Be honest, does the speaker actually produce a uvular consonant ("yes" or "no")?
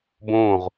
yes